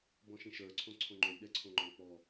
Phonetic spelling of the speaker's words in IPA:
b ɔ̃ ʃ ĩ ʃ ə˞ ǀʰ õ ǀʰ õ ŋ͡ǃ o lʲ ɗ ɛ ǀʰ õ ŋ͡ǃ ɔ̃ k͡p ɔ

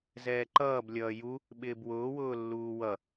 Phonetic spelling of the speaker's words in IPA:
z ɛː ǃ ʌː b lʲ ʌː j u | ɓ ɪː b w ʊː w ʊː lː uː w ʌ

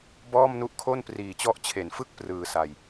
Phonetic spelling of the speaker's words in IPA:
b ɔː˥˩ m n u˦˥ ʔ kʰ o˥˩ n p r iː˨˩ t͡ɕ ɔ˦˥ ʔ t͡ɕʰ e˩˦ n f ɯ˥˩ k̚ p r ɯː˧ s a˧ j

